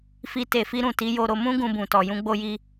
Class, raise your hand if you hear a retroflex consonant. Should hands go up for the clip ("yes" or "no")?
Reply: no